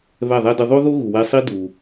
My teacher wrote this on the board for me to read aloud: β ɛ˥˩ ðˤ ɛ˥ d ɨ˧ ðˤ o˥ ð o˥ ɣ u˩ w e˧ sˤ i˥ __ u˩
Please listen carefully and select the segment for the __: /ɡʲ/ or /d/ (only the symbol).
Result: d